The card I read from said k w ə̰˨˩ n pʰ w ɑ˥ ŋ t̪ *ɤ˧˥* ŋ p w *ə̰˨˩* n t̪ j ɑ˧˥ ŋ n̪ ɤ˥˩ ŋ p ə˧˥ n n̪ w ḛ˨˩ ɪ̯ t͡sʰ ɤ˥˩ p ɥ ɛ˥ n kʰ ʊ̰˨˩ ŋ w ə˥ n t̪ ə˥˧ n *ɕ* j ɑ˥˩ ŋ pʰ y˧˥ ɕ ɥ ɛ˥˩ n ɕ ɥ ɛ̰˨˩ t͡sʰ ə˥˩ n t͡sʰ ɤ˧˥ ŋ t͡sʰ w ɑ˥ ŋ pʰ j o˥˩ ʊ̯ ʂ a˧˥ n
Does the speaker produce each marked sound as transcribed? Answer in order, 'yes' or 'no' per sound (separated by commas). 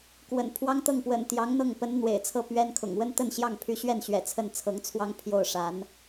no, yes, yes